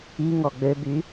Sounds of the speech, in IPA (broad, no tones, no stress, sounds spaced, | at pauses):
i ŋ ɔ ɡ͡b ø b y